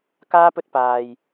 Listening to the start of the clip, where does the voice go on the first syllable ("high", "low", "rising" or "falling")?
high